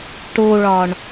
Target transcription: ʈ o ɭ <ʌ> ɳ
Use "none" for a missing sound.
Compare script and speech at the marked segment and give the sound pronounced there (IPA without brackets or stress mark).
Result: ɒ